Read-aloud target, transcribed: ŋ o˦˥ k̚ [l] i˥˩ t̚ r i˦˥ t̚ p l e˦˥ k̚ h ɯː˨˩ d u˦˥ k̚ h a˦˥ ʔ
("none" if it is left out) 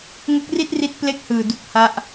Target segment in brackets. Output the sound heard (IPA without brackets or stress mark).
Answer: r